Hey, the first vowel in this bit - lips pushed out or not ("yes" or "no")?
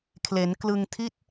no